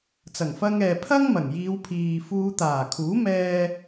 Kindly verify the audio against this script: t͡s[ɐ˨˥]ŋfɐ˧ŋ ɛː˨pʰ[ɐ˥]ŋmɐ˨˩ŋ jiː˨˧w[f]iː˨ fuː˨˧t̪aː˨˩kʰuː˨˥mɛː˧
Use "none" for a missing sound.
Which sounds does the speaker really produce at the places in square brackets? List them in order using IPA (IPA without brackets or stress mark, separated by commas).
ɐ˨˩, ɐ˥, pʰ